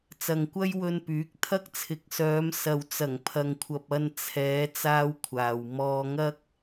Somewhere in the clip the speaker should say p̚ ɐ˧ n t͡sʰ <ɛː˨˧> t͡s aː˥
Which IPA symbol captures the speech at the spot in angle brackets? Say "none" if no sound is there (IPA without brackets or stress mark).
ɛː˨˧